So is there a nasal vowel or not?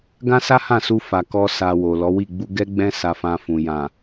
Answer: yes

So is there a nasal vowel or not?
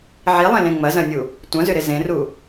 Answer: yes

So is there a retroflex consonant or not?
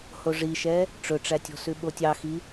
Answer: yes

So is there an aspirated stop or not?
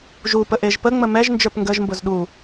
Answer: no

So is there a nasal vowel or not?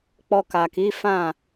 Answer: yes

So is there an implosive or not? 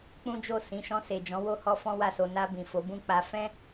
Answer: no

